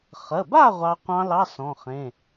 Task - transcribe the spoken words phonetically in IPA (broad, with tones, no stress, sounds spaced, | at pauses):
χ ə˩˧˩ b a˥˨ ʁʷ ɑ˦˥ qʷ ɑ̃˦˥ l ɑ˧˥˧ s ɔ̃˩˧˩ χ ẽ˩˧˩